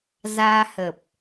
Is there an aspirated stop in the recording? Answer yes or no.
no